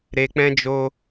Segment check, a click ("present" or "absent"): absent